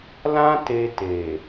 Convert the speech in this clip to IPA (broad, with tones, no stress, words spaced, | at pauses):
lã˦ te˧ te˨